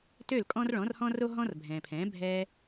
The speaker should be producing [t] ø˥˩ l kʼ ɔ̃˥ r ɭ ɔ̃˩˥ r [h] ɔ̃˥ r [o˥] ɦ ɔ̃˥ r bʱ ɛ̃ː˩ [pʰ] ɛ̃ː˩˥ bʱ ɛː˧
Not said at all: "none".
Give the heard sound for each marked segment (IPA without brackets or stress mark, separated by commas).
t, h, o˥, pʰ